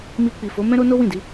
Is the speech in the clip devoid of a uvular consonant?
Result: yes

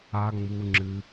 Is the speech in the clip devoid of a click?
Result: no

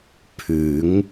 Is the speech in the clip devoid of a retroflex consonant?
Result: yes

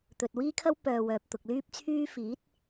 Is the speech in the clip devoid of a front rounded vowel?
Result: no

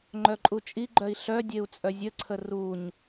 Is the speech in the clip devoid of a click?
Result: no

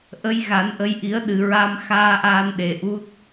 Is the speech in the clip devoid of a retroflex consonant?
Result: yes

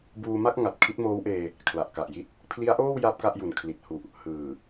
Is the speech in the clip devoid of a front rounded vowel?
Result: yes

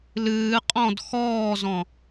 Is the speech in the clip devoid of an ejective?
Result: no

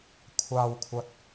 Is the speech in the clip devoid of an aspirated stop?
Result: no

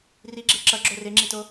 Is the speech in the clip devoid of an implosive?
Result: yes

